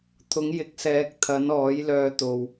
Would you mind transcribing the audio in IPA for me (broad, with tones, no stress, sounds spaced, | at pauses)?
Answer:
t̪ʰ ʊ˨˥ ŋ j ɪ˨˥ k̚ s ɛː˨˥ k̚ t̪ʰ ɐ˨˥ n ɔː˨˥ j l œː˧ t̪ o˨ w